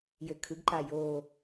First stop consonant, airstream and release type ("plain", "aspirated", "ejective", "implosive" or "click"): aspirated